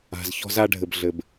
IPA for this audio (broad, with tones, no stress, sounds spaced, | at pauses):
a̤˨ z ç ɔ̤˦ z a˦ ɖʱ ɘ˨ b ɮ ɘ˨ b